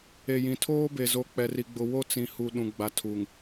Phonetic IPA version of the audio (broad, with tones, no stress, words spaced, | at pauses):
e˨jĩ˨ tʰoː˦be˨zo˨ k͡pɛ˨ri˨ɡ͡bʊ˨ wo˦t͡sĩ˨ hu˨ ɗũ˨ɡ͡ba˨tʰu˨ŋ